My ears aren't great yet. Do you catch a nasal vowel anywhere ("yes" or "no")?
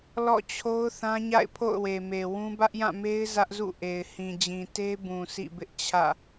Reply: yes